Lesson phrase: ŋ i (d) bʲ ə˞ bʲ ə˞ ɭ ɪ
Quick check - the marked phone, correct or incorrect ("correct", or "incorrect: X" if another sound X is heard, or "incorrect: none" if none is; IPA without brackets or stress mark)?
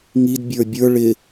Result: correct